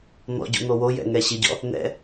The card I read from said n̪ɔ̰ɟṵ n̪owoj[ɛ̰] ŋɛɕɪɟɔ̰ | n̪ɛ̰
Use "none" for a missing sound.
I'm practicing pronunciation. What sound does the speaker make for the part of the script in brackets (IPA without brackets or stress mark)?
ɛ̰